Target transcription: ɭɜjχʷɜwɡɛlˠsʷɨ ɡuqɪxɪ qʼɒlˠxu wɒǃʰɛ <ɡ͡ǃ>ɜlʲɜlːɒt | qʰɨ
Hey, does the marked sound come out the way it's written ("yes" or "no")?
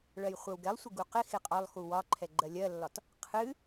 yes